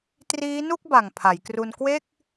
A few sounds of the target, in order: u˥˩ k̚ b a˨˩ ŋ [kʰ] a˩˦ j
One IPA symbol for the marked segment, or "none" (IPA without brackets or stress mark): pʰ